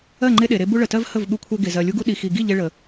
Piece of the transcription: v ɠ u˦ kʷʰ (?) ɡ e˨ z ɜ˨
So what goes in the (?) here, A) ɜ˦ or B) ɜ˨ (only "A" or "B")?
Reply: A